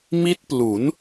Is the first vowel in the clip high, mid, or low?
high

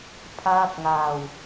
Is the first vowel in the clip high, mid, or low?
low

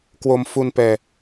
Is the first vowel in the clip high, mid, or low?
mid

